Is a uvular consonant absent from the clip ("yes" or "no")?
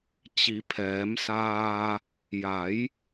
yes